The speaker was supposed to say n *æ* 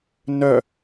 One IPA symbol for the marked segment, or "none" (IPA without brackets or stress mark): œ